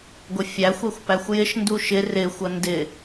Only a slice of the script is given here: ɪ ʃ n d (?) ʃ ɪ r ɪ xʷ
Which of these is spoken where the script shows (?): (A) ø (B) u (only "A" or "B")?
B